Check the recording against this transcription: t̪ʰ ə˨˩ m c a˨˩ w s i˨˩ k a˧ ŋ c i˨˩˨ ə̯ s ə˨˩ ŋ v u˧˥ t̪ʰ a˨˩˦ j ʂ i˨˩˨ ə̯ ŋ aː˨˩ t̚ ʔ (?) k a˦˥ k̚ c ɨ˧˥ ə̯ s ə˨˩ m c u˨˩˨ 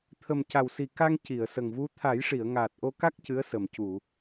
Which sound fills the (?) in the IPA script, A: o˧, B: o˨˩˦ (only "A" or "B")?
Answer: A